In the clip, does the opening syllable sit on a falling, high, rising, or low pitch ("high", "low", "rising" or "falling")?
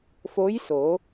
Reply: rising